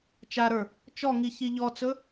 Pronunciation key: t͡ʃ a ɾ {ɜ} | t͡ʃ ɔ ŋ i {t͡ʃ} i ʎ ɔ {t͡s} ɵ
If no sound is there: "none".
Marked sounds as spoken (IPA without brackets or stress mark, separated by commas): ə˞, ç, t͡s